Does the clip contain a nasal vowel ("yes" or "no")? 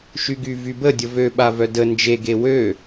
no